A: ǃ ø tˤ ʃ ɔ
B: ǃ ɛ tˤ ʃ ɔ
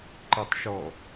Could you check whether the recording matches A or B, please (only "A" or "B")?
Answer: B